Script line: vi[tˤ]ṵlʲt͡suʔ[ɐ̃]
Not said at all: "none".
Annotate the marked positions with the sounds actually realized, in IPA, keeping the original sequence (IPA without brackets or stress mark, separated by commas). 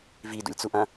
d, ɐ̃